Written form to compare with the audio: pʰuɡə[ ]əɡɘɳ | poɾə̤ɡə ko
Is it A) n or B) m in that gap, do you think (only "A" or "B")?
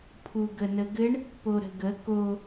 A